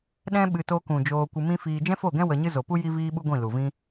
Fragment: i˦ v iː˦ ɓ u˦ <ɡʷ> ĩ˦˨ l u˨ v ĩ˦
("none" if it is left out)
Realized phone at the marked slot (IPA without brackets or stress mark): ɡʷ